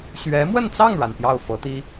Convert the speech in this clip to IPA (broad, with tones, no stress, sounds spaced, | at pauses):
ɕ ɥ ɛ˧˥ m w ə˥˧ n t͡s ɑ˥˩ ŋ ɻ a˩ n p j ɑ˥˩ ʊ̯ f ɤ˧˥ t̪ i˥